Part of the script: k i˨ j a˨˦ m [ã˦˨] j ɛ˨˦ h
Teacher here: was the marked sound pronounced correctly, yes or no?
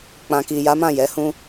yes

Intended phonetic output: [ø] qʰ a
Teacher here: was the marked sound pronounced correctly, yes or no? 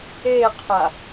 no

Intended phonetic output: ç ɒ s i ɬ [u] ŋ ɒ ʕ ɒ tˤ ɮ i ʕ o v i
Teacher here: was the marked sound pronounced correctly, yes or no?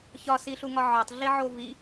yes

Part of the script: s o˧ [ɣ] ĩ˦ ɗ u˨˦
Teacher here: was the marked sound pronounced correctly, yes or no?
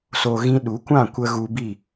yes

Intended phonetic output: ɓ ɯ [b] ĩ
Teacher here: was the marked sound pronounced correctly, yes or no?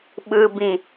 yes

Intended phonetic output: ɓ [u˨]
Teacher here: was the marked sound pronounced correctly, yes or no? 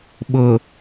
no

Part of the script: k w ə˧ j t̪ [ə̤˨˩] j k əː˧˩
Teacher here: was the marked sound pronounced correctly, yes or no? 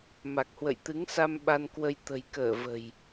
yes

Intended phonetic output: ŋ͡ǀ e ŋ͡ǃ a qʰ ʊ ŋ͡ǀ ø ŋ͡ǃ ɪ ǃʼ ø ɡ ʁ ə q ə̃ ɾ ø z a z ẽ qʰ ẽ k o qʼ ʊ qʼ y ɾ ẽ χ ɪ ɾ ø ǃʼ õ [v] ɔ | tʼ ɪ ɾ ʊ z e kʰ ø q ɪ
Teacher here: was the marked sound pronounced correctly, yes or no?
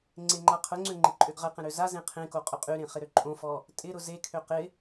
no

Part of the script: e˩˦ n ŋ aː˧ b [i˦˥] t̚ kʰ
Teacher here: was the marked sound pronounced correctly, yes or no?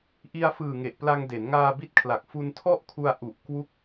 yes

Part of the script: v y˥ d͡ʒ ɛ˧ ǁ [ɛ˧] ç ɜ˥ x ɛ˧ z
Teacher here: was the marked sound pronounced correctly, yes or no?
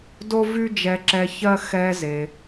yes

